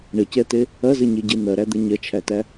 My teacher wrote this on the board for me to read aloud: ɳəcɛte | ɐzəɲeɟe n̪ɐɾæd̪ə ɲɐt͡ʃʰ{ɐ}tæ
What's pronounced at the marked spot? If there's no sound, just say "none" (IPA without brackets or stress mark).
æ